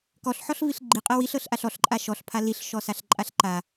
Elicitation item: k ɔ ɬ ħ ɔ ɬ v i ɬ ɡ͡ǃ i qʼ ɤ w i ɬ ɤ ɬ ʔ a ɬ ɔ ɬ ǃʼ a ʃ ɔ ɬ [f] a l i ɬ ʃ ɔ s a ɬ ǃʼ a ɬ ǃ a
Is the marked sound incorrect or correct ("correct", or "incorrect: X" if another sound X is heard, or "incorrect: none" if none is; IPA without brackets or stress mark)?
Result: incorrect: pʰ